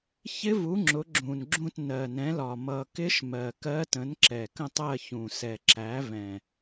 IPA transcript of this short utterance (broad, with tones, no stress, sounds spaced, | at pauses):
ç ɪ˧˥ v u˩˥ ŋ͡ǁ ʊ˩˥ ɡ͡ǁ ũ˨˩ n ɡ͡ǁ ũ˦˨ t n ɜ˨˩ n ɛ̃˩˥ l ɒ˨˩ m ʌ˨˩ k ɪ˧˥ ʃ m ɜ˨˩ k ɜ˧˥ t ə̃˩˥ n ǁ ɛ˨˩ k ə̃˦˨ tˤ ɜ˦˨ ç ũ˨˩ s ɛ˨˩ ǁ æ˩˥ v ɛ̃˨˩